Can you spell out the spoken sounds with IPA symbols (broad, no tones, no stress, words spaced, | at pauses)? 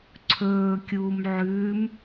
ǀʰɵːkʲuːm ʕʉːm